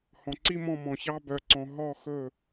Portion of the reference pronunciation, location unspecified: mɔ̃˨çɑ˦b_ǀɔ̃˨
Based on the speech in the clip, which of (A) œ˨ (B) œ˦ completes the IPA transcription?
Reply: A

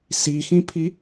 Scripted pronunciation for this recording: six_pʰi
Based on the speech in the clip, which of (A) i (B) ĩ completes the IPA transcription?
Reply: B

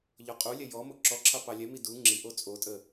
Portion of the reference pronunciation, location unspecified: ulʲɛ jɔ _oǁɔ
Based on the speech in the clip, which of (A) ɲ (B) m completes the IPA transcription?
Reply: B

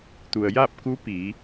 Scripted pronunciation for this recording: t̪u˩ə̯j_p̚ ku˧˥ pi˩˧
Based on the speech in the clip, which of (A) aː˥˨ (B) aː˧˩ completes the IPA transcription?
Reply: A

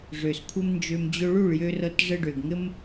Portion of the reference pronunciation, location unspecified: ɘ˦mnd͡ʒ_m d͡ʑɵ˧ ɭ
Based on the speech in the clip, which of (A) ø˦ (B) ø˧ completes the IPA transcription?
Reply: B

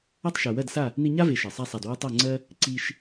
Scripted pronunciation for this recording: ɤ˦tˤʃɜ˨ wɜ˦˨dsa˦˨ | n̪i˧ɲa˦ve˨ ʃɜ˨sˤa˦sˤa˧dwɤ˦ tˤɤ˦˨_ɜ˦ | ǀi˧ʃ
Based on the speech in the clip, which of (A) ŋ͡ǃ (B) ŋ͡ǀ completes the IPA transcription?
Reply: B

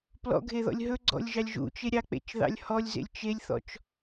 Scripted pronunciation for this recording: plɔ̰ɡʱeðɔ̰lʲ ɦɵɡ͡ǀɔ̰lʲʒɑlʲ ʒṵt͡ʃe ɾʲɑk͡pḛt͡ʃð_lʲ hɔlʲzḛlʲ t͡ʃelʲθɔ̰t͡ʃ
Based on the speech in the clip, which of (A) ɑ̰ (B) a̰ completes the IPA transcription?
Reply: A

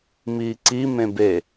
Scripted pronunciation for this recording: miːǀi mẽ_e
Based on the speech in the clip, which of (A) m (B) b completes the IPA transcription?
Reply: B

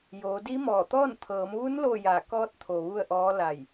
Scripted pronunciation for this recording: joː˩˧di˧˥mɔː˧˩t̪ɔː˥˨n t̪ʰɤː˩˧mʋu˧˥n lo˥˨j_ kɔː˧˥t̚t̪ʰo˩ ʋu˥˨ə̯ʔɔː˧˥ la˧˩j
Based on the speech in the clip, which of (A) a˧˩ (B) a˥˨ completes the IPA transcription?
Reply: A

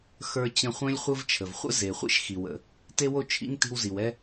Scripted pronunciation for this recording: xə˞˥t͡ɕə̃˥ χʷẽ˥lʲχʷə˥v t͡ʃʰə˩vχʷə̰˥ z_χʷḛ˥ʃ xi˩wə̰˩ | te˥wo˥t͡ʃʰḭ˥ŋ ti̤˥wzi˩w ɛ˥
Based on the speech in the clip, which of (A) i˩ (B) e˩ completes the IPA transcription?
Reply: B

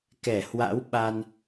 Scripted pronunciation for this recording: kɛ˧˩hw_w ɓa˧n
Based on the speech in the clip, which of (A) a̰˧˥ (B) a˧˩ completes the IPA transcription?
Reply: A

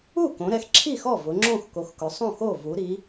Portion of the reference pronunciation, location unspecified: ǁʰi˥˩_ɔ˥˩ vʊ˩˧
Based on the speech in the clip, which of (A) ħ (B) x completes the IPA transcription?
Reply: B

